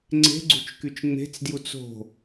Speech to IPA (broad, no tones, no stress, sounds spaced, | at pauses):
ŋ͡ǀ e̤ ɡ͡ǀ ṳ t͡ʃ k y t͡ʃ ŋ͡m e̤ t͡s d j u t͡s o̤